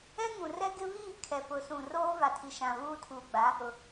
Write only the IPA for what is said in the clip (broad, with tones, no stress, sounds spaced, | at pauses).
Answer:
ɛ˦ ŋ ũ˨ r ɛ˦ ɡ ɪ˦ β iː˦˨ kʰ ɛ˨ p ʊ˨ s ũ˨ r oː˦ v a˨ tʰ i˨ ʃ ã˨ β uː˦ tʰ uː˨ ɡ͡b a˨˦ | ʊ˨